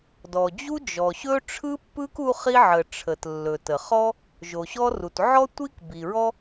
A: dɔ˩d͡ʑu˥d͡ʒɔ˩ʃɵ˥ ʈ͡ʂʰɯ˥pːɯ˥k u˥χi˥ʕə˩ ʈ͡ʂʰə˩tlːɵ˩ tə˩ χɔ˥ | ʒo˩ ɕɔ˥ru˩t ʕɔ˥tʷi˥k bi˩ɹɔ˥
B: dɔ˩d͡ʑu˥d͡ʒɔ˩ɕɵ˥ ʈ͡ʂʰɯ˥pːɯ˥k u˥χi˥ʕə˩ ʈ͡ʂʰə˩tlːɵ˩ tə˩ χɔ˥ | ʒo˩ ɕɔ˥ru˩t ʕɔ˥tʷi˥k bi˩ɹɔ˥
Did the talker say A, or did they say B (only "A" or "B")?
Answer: B